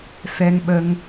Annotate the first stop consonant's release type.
implosive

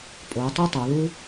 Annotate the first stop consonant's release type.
ejective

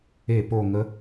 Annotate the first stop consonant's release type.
plain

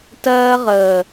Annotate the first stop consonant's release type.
plain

